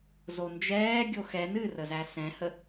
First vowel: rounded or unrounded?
rounded